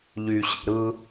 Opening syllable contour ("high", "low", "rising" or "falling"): low